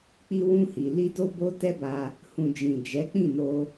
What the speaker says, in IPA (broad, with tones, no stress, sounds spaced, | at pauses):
k͡p i˧ w ũ˧ h i˨ l i˧ d o˧ b o˧ t ɛ˦ b a˧ | h ũ˨ d͡ʒ ĩ˨ d͡ʒ ɛ˨˦ k͡p ĩ˦˨ n o˧